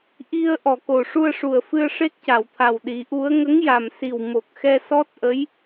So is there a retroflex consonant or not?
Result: yes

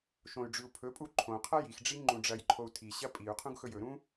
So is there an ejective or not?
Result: yes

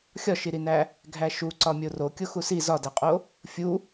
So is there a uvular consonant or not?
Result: yes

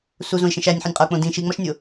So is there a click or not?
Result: no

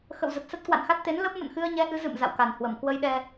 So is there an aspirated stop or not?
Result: no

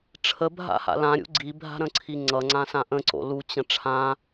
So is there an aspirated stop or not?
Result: yes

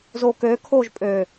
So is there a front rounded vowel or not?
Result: yes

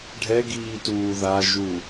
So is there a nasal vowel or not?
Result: no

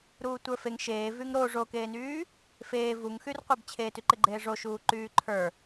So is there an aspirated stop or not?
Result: yes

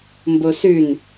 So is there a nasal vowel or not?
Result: no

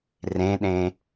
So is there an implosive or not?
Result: yes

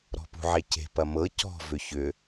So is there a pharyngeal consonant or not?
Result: yes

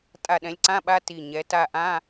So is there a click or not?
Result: yes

